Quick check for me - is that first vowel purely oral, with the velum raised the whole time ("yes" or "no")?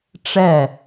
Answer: yes